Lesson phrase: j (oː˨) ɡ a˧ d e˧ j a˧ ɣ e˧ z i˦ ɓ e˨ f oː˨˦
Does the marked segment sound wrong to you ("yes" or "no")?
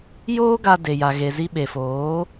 yes